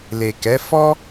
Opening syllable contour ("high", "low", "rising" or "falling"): low